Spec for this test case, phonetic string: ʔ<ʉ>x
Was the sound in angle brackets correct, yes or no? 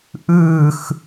no